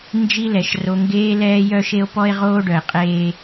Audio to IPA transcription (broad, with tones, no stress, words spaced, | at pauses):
nd͡ʒi˦lɛ˨ʃro˦ ŋɡeː˦lɛː˦jœ˦ʃe˦o̯ pɔ˦e̯ʁoː˦ɖœ˨e̯qʼeː˦